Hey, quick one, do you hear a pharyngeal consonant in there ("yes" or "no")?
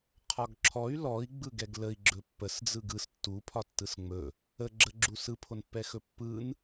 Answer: no